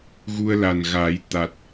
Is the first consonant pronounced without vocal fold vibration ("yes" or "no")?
no